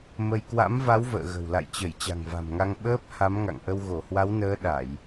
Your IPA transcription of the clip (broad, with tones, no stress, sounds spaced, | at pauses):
m ə˧ j k w a̰˧˥ m v a˨˦ w v ə̰ː˧˨ ɣ ə̤˨˩ w l a̰˧˨ j t͡ɕ ə˧˩ j t͡ɕ a̤˨˩ ŋ v a̤˨˩ m ŋ a˧ ŋ ɓ əː˦˥ p̚ h a˨˦ m ŋ a̰˧˨ ŋ ʔ ə˧ w ɣ o˧˩ h w a˨˦ w n əː˨˦ ɗ a˧˩˨ j